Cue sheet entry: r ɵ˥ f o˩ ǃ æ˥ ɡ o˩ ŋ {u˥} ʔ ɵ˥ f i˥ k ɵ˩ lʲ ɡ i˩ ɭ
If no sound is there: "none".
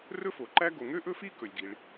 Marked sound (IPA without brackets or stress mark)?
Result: ø˥